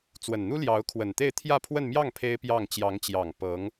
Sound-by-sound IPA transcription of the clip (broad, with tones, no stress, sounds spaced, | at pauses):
t͡s w ə˨˩ n n̪ u˥ l j ɑ˧˥ ʊ̯ kʰ w ə˨˩ n t̪ e˥˧ ɪ̯ t̪ʰ j ä˥˧ pʰ w ə˥˧ n m j ɑ˥˩ ŋ pʰ e˥ ɪ̯ p j ɑ˥˩ ŋ t͡ɕ j ɑ˧˥ ŋ t͡ɕ j ɑ˨˩ ŋ p ɤ˧˥ ŋ